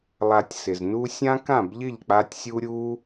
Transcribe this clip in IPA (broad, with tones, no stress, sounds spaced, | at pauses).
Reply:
lˠ a˧ tʲ s ɪ˨ z n u˦ sʲ ã˦ k ã˦˨ b ʎ ɪ˦˨ ʎ k͡p a˧ tʲ sʲ u˦ ɾʲ u˦